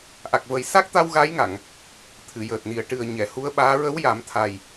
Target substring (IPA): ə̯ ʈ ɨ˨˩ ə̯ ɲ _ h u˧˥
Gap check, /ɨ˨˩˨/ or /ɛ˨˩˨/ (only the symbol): ɛ˨˩˨